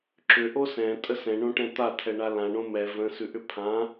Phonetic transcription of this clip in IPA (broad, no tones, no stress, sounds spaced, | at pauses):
ǁ ʏ ʔ o s ɛ̃ tʼ ə s ɛ̃ ɳ õ ʈ ɛ̃ t̪ a tʰ ɛ ɳ a l ã ɳ õ m ɛ v ə̃ s ʉ ʔ ʏ pʰ ã